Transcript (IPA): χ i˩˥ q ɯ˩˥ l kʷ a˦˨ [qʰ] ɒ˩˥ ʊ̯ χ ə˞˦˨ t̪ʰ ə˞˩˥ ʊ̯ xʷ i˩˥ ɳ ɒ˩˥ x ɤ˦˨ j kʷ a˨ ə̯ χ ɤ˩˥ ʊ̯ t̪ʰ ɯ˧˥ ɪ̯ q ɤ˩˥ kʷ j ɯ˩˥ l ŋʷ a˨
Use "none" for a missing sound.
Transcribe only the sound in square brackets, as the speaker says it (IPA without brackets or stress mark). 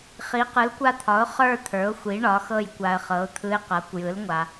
t̪ʰ